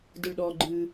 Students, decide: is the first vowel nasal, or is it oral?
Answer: oral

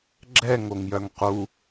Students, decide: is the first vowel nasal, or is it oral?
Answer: oral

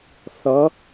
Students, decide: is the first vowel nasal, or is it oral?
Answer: oral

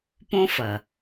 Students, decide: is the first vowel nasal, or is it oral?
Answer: nasal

